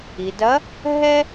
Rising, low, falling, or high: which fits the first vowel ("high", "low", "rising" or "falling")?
low